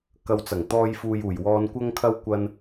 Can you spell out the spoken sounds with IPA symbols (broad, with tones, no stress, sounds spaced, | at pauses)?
k ɐ˨ w t͡s ɐ˨˩ ŋ t̪ ɔː˧ j f uː˨ j uː˨˩ j w ɔː˨ n kʷ ɐ˧ ŋ kʰ ɐ˧ w kʷ ɐ˧ n